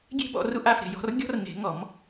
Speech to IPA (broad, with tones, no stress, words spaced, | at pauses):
ɡʲe̤˥bɔ̰˨˦ ru˥ʔa˨˦fɾe̤˨jɔ̤˥r ɡʲɔ̤˥rne̤˨˩˦ŋɔ˨˩˦m